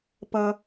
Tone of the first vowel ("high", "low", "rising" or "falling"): low